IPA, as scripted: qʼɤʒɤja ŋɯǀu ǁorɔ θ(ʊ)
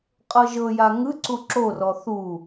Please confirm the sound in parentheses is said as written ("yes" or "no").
no